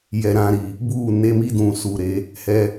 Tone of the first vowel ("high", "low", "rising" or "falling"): low